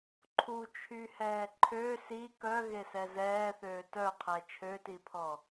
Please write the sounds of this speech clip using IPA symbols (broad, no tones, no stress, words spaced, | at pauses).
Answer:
ǃʰut͡ʃʰyhɛː ǃʰø si kœɣesɛ zɛːθøː tœqʰɛ t͡ʃʰøtipʰɔ